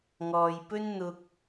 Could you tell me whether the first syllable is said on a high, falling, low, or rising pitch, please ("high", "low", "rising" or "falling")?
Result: low